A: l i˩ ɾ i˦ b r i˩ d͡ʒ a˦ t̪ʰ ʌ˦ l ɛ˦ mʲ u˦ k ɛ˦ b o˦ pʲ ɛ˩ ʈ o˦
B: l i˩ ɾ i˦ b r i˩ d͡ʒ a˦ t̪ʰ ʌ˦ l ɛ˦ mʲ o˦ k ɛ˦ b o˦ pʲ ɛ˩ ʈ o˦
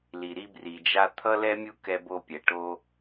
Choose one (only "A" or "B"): A